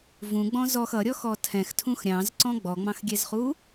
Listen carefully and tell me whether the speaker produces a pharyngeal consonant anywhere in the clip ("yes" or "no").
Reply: no